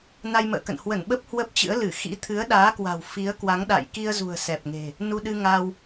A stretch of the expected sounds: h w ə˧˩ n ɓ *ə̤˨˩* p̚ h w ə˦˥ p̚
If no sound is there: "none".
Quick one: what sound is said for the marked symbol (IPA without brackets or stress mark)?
ə˦˥